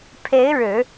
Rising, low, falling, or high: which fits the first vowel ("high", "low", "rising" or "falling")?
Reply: rising